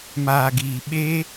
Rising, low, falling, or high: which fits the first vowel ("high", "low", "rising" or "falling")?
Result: low